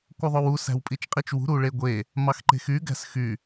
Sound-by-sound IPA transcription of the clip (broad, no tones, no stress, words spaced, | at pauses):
kʷɯðˤowu sæ̤wpʼit͡ʃqʼit͡ʃwṳ ɾuɭeɡʷe | mɑxǃe̤xy ɡæ̤sxy